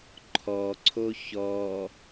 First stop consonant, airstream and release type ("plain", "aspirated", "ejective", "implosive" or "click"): click